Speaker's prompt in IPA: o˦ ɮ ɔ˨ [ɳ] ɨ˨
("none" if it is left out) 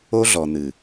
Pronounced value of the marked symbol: n̪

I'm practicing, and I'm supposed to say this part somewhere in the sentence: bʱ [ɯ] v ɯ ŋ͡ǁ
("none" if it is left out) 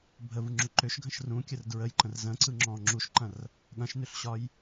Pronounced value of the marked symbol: ə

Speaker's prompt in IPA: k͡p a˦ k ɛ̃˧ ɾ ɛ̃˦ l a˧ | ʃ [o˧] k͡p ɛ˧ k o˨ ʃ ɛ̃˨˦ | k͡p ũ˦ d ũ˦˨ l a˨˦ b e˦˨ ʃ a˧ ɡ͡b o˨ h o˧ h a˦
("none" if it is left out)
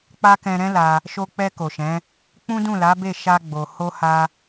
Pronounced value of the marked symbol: o˧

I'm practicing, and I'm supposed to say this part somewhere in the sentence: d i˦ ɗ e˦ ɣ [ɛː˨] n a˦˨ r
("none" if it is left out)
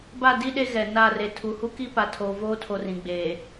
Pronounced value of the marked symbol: ɛ˨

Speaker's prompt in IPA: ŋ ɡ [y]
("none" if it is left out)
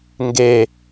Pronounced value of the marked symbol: e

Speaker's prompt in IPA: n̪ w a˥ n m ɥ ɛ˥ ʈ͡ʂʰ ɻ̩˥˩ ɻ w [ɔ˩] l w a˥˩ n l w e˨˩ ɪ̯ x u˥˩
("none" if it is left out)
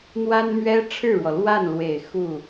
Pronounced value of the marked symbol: ɔ˩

